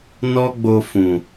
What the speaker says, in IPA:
n ɔ˦ ɡ͡b o˧ f ũ˨

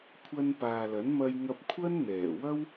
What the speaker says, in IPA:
kʷʰ ɐ˧ n p aː˨ l ɐ˨˥ n m ɐ˧ j ŋ ɐ˧ p̚ kʷʰ ɐ˥ n n̪ ɛː˨˩ w ɐ˥ w

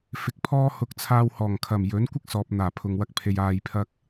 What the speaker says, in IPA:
f ɪ˨˥ k̚ pʰ ɔː˥ h ʊ˧ k̚ t͡sʰ aː˧ w h ɔː˨˩ ŋ kʰ ɐ˨˩ m j ɵ˨˥ n kʷ ɪ˥ k̚ s ɔː˨ p̚ n̪ aː˨˩ pʰ ʊ˨ ŋ w ɐ˧ k̚ pʰ e˧ j aː˧ j pʰ ɐ˥ k̚

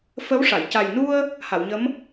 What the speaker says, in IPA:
f ə˧˥ w ʂ a˨˩˨ j c a˨˩ j n u˧ ə̯ | h a˨˩˨ w ɲ ə˧˥ m

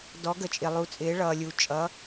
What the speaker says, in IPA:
d ɔ˩˧ ɡ ə˩ t͡ʃʼ ɪ˩ lˠ u˩˧ t͡sʼ ɪː˩˧ ɭ ʌː˩ lʲ u˩ t͡ʃʼ ʌ˩˧

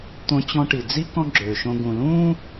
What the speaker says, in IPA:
t̪ õ˧ t͡ɕ ɔ̃˧ ʈ i˩ d͡z i˥ k ɔ̃˥ ɡ͡ǁ øː˩ ʃ õ˧ ɡ ũ˩ l ũː˥

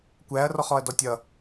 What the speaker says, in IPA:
kʷ æ ɐ̯ r ɔ χ ɔ ɐ̯ d ɔ tʲ ʌ

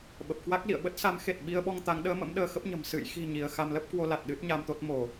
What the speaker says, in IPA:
ɓ ə˨˩ p̚ k w a˦˥ k̚ l ḭ˧˨ ə̯ ɓ ə˦˥ t̚ s a˨˦ m x e˨˩ t̚ ɓ i˧ ə̯ ɓ ɔ˧ ŋ t̪ a˨˦ ŋ ɗ əː˨˦ m ə̰˧˥ m ɗ əː˧ x ə˦˥ p̚ ɲ ə̤˨˩ m s ɨ̰˧˨ j x i̤˨˩ ɲ i˧ ə̯ x a˧ m l ə˦˥ p̚ k w o˧ l a˨˩ t̚ ɗ ɨ˦˥ t̚ ɲ a˧ m t̪ o˦˥ t̚ m o˧˩˨

